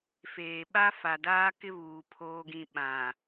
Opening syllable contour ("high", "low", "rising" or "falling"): low